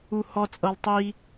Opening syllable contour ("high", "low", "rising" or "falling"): low